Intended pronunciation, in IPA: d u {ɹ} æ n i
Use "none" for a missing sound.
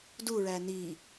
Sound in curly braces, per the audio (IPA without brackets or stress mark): ɹ